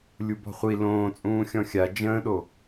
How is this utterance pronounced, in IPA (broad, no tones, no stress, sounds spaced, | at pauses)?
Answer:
lʲ u b ɔ̤ χʷ i l õː t͡sʼ ũː xʲ ɔ̃ xʲ a d͡ʒ ə̃ː ɗ o